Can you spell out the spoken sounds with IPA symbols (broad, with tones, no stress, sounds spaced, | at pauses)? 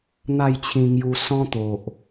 n̪ a˥˧ j t͡ɕʰ ĩ˧ ŋ j u˧ s ɔ̃˦ t̪ o˨ ʔ